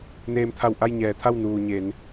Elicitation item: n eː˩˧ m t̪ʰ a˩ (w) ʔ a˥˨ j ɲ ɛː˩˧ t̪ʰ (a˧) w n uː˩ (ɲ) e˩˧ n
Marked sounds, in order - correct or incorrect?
correct, incorrect: a˥˨, correct

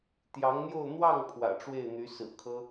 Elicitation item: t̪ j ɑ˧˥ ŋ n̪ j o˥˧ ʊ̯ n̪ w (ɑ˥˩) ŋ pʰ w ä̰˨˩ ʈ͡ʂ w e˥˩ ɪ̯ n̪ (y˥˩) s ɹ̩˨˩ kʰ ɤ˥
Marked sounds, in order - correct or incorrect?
correct, incorrect: y˧˥

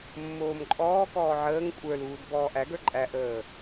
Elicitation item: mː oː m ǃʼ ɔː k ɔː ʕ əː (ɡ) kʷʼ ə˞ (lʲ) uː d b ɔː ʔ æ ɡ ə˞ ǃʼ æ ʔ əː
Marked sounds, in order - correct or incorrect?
incorrect: ŋ, incorrect: l

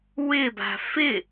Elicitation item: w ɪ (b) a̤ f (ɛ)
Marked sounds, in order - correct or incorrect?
correct, incorrect: ɪ

